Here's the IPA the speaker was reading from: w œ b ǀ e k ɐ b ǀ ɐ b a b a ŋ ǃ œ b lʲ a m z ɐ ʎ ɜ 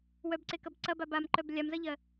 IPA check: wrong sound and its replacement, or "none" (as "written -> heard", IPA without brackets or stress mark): ŋ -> m